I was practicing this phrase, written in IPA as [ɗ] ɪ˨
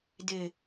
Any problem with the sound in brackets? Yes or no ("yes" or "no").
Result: yes